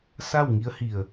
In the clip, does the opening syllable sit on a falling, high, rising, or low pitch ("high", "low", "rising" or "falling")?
falling